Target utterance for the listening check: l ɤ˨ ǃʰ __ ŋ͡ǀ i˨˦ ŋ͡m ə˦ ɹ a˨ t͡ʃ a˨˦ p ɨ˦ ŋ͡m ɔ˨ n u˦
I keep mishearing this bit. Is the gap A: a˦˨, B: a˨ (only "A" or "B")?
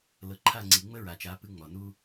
A